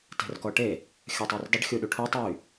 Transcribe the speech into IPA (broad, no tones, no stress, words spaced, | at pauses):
tɛ̤rkɔʈe | xʲɐtˤordˤʏɖ xʲuɗuʈʰutˤ jy